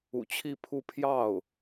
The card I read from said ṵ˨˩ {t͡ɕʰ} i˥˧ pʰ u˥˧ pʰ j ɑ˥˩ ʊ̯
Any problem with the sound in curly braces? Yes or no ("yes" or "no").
no